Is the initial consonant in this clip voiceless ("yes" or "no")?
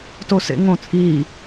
yes